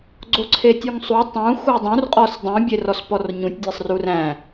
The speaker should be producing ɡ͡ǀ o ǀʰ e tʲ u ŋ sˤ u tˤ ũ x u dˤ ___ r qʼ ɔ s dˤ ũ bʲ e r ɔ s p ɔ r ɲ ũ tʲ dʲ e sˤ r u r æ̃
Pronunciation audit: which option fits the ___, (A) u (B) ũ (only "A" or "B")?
B